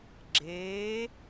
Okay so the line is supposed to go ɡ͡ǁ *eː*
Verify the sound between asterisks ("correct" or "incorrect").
correct